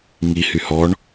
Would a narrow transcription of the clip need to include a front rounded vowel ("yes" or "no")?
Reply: yes